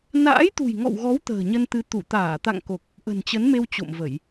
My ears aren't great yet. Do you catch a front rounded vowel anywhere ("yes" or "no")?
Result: no